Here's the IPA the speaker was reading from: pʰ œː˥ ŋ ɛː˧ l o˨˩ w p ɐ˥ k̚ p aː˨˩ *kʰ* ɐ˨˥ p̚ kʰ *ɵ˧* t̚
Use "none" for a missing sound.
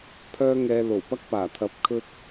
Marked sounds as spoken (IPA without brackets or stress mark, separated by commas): t̪ʰ, ɵ˥